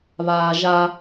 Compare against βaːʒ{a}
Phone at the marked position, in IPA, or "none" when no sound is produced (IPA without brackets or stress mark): a